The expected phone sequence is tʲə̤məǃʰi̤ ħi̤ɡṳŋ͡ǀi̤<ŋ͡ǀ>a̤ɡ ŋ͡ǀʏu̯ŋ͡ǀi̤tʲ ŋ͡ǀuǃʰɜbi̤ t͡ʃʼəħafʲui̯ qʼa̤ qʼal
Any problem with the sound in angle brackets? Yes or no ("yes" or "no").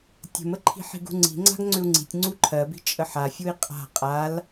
no